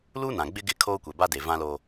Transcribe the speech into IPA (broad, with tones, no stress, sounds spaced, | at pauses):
l uː˦ n ã˨ ɡ͡b ɪ˦ ɡ ɪ˦˨ kʰ oː˦ kʷ ɛ˨ b a˦ d e˨ v ã˦ l oː˦